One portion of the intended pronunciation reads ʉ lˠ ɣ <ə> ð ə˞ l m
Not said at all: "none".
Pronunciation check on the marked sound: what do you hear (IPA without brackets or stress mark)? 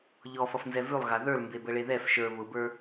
a